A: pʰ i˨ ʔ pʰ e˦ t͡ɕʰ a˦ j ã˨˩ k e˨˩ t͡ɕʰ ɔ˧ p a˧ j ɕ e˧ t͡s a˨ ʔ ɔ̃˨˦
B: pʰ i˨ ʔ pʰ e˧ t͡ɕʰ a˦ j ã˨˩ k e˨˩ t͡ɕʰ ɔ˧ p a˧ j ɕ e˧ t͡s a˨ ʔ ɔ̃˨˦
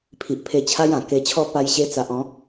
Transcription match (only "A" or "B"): B